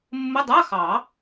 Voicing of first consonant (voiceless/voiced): voiced